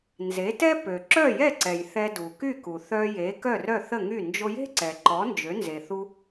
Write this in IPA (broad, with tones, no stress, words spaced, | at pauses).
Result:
nze˩˥tɛ˥ pø˩ǁœ˥˩jɛ˥˩ǀɛ˩j θɛ˧du˩ky˥˩ku˩ θœ˧je˩˥ kœ˥˩rœ˥˩θə˥˩ŋy˥˩ nd͡ʒo˧je̤˥ǀɛ˩ ǃɔ˩˥nd͡ʒø˩˥nze˩θu˧